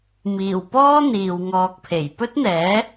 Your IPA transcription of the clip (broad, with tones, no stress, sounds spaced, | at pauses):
m iː˨˩ w p ɔː˥ n̪ iː˨ w ŋ ɔː˧ k̚ pʰ e˨˩ j p ɵ˥ t̚ n̪ ɛː˨˥